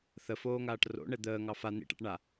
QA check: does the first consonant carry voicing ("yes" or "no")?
no